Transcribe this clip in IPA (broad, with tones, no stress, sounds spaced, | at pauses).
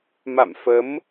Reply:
m a̰˧˨ m f ə˨˦ m